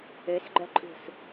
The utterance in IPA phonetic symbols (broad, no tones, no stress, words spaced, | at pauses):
øsɡ͡ǃœǃʼṳs